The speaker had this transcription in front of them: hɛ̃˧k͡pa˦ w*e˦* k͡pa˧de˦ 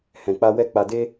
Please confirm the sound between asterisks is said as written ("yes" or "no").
no